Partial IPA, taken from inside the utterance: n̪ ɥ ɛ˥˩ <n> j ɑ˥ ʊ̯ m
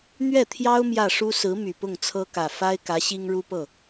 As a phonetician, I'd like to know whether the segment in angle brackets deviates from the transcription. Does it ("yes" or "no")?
yes